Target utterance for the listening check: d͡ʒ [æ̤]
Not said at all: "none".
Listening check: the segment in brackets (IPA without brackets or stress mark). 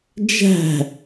æ̤